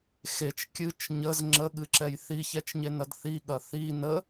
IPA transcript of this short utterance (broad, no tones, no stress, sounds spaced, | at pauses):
x e t͡ʃ kʲ ɨ t͡ʃ ɲ ə z ŋ͡ǁ ə ɠ ɨ ǁ ɛ j θ i ç ɛ t͡ʃ ɲ e n ɐ d θ i ɠ ɐ θ i n ə